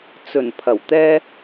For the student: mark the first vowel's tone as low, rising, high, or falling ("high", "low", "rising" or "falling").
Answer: low